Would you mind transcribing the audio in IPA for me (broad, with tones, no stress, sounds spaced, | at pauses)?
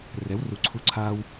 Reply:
r ɛ˩˥ w r u˨ ǀʰ u˧˥ ǀʰ a˥ w